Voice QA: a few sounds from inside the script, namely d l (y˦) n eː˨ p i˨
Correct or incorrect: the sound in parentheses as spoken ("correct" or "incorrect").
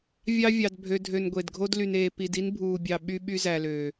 incorrect